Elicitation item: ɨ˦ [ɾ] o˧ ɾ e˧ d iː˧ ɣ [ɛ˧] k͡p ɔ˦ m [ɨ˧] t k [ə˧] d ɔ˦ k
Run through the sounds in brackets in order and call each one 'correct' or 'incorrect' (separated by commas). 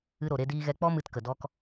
correct, correct, correct, incorrect